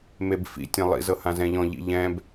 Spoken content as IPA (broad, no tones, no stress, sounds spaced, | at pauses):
m e b f ḭ tʲ ɛ̃ lˠ ḭ z ɤ h ã z ɛ̃ ʎ ɔ̃ ʎ ḭ ʎ ɛ̃ b